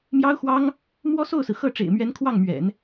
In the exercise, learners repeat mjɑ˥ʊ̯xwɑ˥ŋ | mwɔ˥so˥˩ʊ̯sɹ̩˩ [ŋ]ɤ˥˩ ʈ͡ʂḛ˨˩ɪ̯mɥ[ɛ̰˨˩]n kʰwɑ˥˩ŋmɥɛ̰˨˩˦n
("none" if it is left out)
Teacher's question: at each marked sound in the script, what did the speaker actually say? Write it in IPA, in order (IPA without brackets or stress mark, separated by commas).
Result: x, ɛ˧˥